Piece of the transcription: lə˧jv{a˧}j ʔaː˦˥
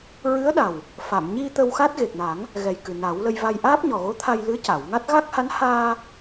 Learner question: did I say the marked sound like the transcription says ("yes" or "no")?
yes